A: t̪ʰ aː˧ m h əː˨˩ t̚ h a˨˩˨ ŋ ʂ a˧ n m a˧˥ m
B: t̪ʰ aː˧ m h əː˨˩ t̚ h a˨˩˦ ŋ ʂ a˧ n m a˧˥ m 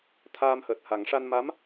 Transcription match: B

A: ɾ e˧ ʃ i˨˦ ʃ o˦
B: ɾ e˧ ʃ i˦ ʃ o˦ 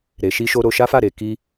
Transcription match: B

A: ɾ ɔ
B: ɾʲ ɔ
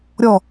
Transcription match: B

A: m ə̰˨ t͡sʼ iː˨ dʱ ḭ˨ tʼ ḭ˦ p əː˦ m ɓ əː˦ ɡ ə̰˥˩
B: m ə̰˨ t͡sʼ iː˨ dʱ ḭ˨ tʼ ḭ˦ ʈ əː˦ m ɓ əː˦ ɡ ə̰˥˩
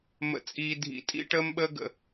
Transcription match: B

